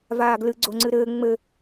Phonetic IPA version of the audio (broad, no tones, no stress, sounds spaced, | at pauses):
v aː ɡ l ɨ ɡ͡ǀ o ŋ͡ǀ ɨ ɾ ɘː ŋ͡m ɘ